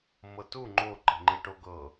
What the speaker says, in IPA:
m ɤ t u ŋ͡ǃ o ǃ i̤ ŋ͡ǃ i ʈ o ɡ ɤ

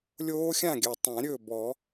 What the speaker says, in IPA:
lʲ oː˦˥ xʲ ã˥˨ ɡʲ ɜ˨˩ tˤ ã˨˩˦ ɾʲ ɵː˥˨ b ɔ˨˩˦

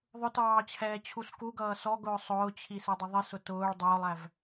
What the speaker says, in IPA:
ðˤ ʊ t ɑː t͡ɕʰ ɛː t͡ɕʰ u s k u ɡ ʌː s ɔ ɡ ʊː sˤ ʊː t͡ɕʰ i s ɛ dˤ ɪ ðˤ i s ʊ t ʊː ɭ dˤ ʊː lˠ æ v

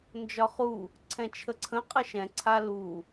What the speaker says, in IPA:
n d͡ʒ ɒ χ u | ǀʰ ɛ̃ t͡ʃʰ ə ǀʰ ə̃ qʼ ə ʃ ɛ̃ ǀʰ a l u

